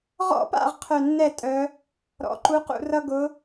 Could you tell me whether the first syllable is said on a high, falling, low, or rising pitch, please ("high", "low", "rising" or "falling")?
high